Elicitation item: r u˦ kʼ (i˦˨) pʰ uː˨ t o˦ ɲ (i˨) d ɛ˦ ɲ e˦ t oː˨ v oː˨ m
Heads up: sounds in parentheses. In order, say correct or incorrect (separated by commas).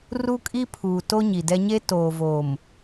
incorrect, correct